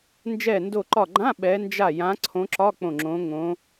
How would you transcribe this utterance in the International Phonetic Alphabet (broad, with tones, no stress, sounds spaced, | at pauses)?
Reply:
n d͡ʒ ɛ˧˩ n d o˧˩ ǃ ɒ˧˩ ɡ͡ǃ ã˧˥˧ ɓ ɛ˨˦ n d͡ʒ a˧˩ j ã˨˦ ǀʰ õ˨˦ ǁ ɒ˧˥˧ k͡p õ˧˩ ŋ͡ǁ õ˨˦ ŋ õ˨˦